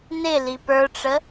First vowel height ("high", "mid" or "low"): high